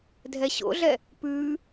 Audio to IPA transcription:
dʱ ɛ ɕ o̰ ɮ ɛ | p ʉː

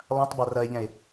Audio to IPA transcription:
lˠ ɐ̃ tˤ b a r ɐ e̯ ʎ ɛ̃ e̯

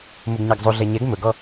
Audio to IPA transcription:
m u ɡ ɲ ɑ ɡ zˤ u ɮ ɛ ɲ ɛ ɡ m ɵ ɡ ɔ

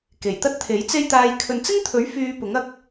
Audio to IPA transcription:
k e˨˩ j t̪ ɐ˥ t̚ t̪ʰ e˨˥ j t͡s e˥ j t̪ aː˧ j kʰ ɵ˨ n t͡s ɪ˥ ŋ t̪ʰ ɵ˨˥ ɥ f yː˧ p ʊ˨˥ ŋ ɐ˧ k̚

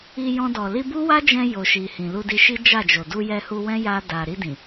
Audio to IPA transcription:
i˧ j ɔ̃˧ d ɔ˨ l i˧ b u˦ w a˦ d͡ʒ ɛ̃˧ j o˨ ʃ i˨ h ĩ˨ l u˧ d i˧ ʃ i˦ d͡ʒ a˦˨ d͡ʒ o˨ d u˧ j ɛ˧ h u˧ w ɛ̃˦ j a˧ d a˨ ɾ i˧ d ĩ˨

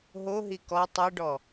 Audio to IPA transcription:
ɦ o ɦ i k ɔ tˤ ɨ ɖ ɔ

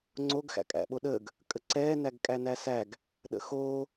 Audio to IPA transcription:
ŋ͡ǀ o ɡ x æ̰ kʼ æ̰ ɓ o ɗ əː ɡ | kʼ ə ǀ ɛː n æ ɡ kʼ æ n æ s æ ɡ | ɗ ə̰ x oː

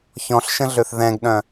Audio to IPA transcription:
ç ɔ̃ ɬ ʃ ə̃ ɮ ø θ ð ɛ̃ ɡ ɗ œ̃

